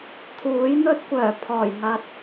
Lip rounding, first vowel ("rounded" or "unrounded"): rounded